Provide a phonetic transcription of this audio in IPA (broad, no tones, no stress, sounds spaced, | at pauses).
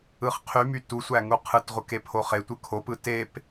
ɯ χ qʰ y m y t u sʷ æ ŋ u qʰ ɯ t ʁʷ ɯ k e pʰ o χ e tʷ ɯ kʰ o p ɯ t e p